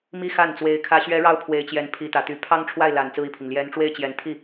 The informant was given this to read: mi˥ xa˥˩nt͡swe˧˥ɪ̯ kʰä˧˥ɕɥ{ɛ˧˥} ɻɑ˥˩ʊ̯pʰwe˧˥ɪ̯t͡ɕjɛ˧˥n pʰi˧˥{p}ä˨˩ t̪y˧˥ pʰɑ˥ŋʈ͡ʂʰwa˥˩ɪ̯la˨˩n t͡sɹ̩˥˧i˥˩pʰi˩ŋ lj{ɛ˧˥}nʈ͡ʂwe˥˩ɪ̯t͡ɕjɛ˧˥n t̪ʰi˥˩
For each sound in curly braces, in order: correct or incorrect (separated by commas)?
correct, incorrect, correct